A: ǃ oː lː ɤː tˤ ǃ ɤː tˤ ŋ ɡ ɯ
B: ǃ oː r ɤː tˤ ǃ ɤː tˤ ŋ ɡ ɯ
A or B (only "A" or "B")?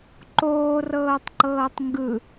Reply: B